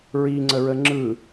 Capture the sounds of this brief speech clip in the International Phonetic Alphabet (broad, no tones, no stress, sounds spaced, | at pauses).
ɹ i ŋ͡ǀ ə ɹ ə ŋ͡ǁ ɯ